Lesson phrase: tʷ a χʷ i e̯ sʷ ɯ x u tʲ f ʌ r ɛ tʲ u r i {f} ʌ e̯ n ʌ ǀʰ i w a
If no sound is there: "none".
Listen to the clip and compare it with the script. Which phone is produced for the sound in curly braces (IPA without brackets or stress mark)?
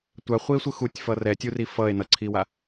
f